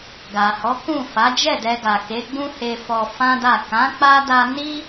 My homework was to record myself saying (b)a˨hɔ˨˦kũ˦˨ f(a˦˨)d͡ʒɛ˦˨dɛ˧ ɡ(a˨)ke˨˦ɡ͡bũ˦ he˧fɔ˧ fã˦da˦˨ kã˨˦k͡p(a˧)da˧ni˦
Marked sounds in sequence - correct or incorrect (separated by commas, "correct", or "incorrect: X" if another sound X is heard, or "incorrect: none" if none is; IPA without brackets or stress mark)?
incorrect: ɡ, incorrect: a˨˦, correct, correct